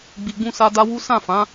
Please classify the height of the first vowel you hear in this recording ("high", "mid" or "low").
high